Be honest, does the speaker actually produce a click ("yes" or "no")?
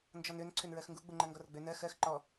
yes